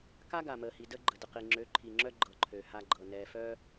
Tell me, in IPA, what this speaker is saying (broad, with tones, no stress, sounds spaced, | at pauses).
k a˦ ɡ a˨ m əː˨ h i˨ d ə˦ ɡ͡ǃ ə˨ d ə˨ q i˨ ŋ͡ǁ ø˨˦ ǃʰ i˨ ŋ͡ǁ œ˦ ɡ͡ǃ ɤ˨ ǃʰ ø˨ h a˦ ɡ͡ǃ ɤ˨ n ɛː˨ f œ˦